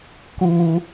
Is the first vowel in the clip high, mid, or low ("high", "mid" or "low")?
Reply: high